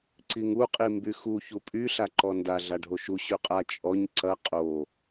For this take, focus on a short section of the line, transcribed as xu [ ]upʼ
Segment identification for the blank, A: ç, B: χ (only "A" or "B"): A